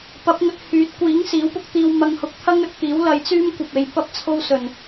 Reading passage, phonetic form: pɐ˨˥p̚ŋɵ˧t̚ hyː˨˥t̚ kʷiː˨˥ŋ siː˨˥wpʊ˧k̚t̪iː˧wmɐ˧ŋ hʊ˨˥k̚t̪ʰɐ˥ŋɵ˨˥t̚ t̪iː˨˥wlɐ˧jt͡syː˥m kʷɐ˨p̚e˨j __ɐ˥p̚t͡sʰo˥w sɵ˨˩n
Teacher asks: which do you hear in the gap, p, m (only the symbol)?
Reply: p